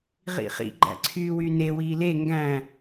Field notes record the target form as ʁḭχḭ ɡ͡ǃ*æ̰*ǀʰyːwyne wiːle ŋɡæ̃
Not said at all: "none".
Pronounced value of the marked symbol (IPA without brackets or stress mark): æ̰